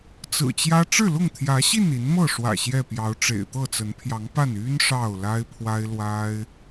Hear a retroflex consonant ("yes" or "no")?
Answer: yes